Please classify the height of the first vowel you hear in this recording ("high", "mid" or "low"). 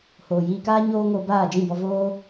mid